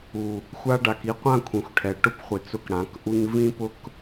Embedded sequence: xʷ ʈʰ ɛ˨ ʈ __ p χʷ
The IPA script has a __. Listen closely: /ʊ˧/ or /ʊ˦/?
ʊ˦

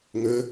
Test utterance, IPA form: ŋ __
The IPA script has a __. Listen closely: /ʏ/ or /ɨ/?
ʏ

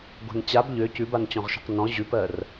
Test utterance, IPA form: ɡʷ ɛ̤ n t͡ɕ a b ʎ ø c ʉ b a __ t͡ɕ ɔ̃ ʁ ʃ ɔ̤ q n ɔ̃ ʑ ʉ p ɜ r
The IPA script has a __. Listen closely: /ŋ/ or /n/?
n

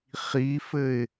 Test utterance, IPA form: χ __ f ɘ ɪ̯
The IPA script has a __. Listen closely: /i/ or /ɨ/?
i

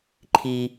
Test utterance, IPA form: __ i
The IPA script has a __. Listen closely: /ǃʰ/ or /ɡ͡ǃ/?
ǃʰ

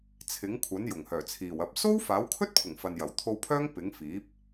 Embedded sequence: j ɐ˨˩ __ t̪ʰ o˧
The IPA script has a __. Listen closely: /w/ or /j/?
w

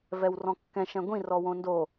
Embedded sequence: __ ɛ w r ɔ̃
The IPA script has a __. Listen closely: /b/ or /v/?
v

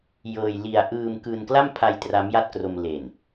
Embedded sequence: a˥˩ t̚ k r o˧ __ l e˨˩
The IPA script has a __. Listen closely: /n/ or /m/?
m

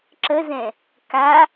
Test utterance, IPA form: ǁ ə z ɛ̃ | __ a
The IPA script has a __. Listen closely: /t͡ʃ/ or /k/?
k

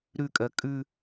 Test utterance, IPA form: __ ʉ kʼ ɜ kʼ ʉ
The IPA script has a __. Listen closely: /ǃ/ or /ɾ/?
ɾ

